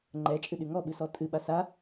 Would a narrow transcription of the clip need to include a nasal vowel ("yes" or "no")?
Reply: no